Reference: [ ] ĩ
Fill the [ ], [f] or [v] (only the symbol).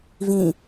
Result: v